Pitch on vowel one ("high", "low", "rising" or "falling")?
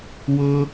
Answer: high